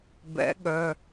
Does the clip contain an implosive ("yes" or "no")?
yes